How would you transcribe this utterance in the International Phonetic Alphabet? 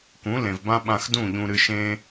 k ũ˨˦ l ẽ˨ v b ã˦ ɓ ã˧ x d ũ˦˨ ʎ ũ˧ ɾ ɨ˧ ʃ ẽ˦

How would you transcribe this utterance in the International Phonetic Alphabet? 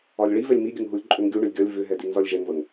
ɒ lʲ ɭ i v ɛ lʲ m i ɡʲ ə ŋ ɦ u lʲ ǃʼ ʏ ŋ ɡʲ u ɳ ɵ lʲ ɡʲ ɒ lʲ v ʏ ɦ ɛ d i ŋ z ɒ lʲ ʒ ɛ ŋ v ə ŋ

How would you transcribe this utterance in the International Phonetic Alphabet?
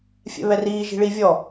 fʲ ɛ̰ β ɛ r iː ʒ i̤ ɭ i vʲ ɔ

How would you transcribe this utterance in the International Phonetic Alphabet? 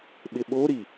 ɓ ɪ ɓ o ɾ i

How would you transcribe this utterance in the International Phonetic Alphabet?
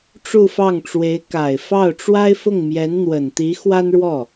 ʈ͡ʂ u˥˧ f ɑ˥˩ ŋ ʈ͡ʂ w e˧˥ ɪ̯ k a˨˩ ɪ̯ f ɑ˥˩ ʊ̯ ʈ͡ʂ w a˥ ɪ̯ f ʊ˥˩ ŋ m j ɛ˧˥ n n̪ w ə˨˩ n t̪ i˧˥ x w a˥ n ɻ w ɔ˥˩

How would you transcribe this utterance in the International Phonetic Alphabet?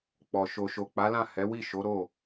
k͡p ɔ˨ ʃ o˨ ʃ o˨ k͡p a˨˦ l ã˦˨ h ɛ˨˦ w i˦˨ ʃ o˨˦ ɾ o˦˨

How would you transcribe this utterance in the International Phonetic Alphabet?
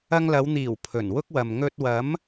ɐ˧ ŋ l ɐ˨˧ w n̪ iː˨˩ w pʰ ɵ˨˩ n w ʊ˥ k̚ w ɐ˨ m ŋ ɵ˧ t̚ w ɐ˨˥ m

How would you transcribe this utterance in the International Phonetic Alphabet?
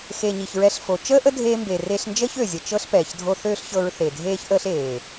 x e˨ ɲ i˨ ç ɹ ɛ˧ ɬ f o˨ t͡ʃ əː˦ ʔ ə˦ dʱ eː˧ m b e˨ r e˧ ɬ n d͡ʒ əː˦ ç ø˨ zʲ ə˨ t͡ʃ ɤ˦ ɬ p ɛː˨ ç dʱ o˧ θ øː˦ ɬ ç ɤ˧ ɹ θ e˨ dʱ eː˦ ç ʔ əː˦ ɬ eː˨

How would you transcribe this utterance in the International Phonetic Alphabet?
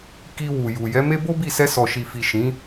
k i˧ w u˨ j u˨ j ɛ˨˦ m e˦ b o˦ b i˦˨ s ɛ˧ s ɔ˨ ʃ i˨ f i˨ ʃ ĩ˨˦

